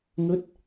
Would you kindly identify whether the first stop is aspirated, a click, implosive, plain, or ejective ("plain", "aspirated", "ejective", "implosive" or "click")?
plain